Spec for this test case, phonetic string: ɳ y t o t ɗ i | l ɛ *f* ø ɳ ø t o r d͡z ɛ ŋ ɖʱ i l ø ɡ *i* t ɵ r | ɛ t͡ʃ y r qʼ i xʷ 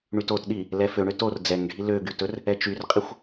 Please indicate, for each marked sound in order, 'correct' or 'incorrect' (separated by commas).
correct, incorrect